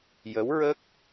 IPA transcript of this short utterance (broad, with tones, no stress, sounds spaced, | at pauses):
j ə˧˥ w ɹ ə˦˥ k̚